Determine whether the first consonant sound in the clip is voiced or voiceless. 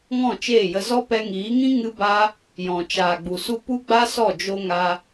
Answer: voiced